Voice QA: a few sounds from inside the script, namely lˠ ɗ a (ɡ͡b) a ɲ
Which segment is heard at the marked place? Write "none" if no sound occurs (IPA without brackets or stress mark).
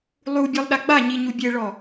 ɡ͡b